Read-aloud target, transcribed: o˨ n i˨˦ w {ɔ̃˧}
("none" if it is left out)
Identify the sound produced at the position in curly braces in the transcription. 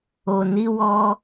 ɔ˧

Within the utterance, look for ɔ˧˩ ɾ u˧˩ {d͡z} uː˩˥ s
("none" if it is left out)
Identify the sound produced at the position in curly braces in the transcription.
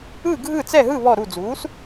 d͡z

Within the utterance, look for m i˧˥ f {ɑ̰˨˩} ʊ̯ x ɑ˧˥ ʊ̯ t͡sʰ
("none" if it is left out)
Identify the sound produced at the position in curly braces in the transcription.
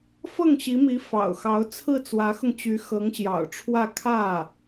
ɑ̰˨˩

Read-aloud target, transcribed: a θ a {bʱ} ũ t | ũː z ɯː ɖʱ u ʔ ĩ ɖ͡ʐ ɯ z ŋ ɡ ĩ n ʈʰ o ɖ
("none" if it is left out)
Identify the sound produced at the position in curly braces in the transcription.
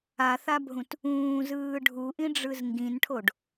bʱ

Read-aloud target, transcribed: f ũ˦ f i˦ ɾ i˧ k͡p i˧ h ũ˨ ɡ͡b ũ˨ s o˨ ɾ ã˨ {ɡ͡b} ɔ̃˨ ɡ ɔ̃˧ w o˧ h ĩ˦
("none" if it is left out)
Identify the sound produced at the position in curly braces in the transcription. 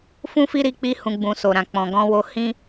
k͡p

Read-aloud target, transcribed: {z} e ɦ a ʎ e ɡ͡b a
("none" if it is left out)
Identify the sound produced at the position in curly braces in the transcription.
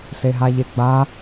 s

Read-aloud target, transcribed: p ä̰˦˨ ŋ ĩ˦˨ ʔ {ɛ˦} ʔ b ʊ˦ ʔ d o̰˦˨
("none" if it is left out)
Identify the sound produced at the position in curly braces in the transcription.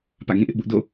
ɪ˦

